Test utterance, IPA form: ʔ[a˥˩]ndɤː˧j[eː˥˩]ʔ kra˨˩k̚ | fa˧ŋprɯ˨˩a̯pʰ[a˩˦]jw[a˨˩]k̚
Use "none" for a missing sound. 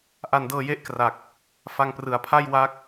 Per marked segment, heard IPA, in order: a˧, e˥˩, a˥˩, a˦˥

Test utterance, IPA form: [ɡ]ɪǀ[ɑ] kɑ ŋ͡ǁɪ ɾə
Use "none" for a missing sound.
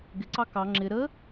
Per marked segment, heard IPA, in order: ɡ, ɑ

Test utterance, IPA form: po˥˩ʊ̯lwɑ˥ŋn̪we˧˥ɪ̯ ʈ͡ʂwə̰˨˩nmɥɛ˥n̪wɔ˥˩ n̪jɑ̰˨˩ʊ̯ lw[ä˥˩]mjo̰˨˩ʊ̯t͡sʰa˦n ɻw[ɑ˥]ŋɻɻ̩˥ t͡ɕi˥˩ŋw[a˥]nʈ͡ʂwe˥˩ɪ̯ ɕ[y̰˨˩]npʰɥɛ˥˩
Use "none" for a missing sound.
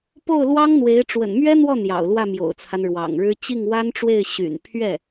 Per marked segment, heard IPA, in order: ä˥˩, ɑ̰˨˩, a˥, y̰˨˩

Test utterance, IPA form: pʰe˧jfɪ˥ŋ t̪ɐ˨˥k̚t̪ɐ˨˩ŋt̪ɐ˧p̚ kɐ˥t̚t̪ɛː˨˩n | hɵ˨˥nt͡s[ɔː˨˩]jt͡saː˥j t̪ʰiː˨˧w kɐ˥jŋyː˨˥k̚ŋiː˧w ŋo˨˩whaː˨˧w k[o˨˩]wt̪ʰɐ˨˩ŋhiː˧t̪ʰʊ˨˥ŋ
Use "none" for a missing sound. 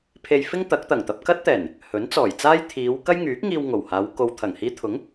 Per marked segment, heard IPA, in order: ɔː˨˩, o˨

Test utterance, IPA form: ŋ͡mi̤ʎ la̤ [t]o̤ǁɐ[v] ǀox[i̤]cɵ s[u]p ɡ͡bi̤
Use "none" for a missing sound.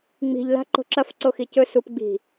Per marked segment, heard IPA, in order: ǃ, f, i, u

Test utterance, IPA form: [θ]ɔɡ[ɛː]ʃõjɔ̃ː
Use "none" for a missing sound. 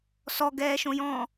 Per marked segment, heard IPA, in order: s, ɛː

